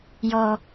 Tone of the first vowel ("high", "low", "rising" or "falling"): low